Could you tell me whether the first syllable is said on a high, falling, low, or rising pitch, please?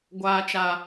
low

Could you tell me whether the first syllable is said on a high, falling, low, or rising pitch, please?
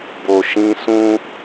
low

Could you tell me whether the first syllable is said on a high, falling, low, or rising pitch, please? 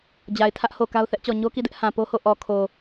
low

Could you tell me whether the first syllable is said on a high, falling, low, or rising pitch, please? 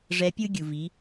rising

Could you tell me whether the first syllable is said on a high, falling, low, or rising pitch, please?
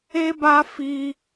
high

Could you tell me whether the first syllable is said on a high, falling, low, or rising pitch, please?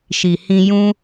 low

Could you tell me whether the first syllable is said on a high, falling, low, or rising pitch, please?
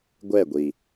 falling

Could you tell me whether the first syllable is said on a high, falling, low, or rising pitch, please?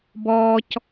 high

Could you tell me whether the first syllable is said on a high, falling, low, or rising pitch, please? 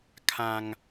high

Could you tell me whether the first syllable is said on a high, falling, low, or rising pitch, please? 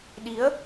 rising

